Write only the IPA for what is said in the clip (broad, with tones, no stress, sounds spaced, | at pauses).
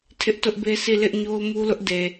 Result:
tʰ ɪ˦ ʔ t ʊ˦ ʔ b e˦ s i˦˨ l ɪ˦ ʔ ɲ o˦ ʊ̯ m u˦ l ʊ˦ ʔ d e˨